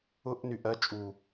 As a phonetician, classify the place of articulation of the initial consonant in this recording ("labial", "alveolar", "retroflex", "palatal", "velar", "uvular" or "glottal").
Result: glottal